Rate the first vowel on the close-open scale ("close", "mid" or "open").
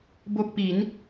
mid